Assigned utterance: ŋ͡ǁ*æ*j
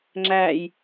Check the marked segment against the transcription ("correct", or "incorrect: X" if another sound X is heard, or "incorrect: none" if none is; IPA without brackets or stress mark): correct